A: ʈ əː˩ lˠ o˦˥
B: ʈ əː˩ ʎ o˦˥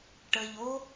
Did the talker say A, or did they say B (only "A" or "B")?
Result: B